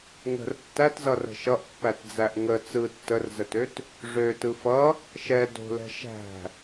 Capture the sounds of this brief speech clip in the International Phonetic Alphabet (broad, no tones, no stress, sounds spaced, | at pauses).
ŋ ə̤ r tː æ t z ʌ r ə̤ ʃ ʌ ʔ pː æ t d͡z æ ʔ ŋ ə t͡s ɯ tː ə r z ə t ø t | ʐ ø t ɯ f ʌ | ʃ ɛ d o̤ l ɛ̤ ʃ æ̤